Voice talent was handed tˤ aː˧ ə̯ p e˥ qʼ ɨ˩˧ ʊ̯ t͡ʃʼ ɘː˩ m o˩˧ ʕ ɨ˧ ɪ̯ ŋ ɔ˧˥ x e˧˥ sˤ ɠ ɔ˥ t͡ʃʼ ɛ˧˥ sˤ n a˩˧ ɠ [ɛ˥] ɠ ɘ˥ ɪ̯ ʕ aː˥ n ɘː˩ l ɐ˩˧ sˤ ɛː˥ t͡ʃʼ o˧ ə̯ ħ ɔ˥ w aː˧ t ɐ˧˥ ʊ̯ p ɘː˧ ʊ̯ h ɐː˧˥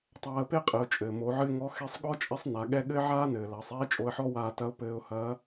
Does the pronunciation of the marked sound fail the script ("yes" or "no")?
no